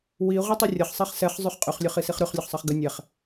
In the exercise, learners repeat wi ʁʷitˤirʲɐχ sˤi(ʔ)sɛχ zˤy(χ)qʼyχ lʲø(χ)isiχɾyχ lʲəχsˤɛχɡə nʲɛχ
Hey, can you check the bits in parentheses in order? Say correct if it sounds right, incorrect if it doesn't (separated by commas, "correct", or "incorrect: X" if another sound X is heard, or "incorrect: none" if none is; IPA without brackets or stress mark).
incorrect: χ, correct, correct